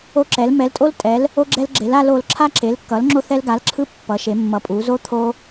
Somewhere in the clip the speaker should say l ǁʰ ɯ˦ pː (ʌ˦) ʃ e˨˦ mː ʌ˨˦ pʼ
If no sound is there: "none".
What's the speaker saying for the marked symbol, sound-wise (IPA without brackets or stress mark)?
ʌ˨˦